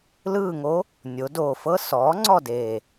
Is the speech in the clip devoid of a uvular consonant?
yes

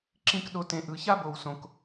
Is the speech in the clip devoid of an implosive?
no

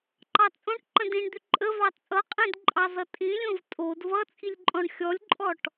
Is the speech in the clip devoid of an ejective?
no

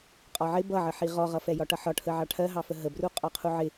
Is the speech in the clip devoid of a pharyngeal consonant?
no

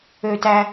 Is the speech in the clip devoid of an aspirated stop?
yes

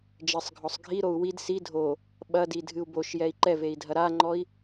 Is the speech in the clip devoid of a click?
no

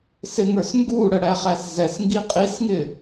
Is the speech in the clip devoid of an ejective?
no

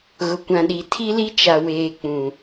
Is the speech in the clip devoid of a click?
yes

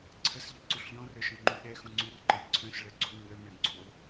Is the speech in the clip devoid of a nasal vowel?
no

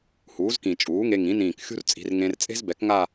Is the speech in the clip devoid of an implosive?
yes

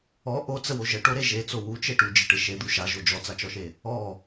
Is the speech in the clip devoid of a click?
yes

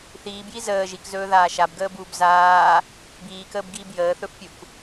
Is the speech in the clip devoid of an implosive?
yes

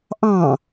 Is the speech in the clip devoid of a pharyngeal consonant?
yes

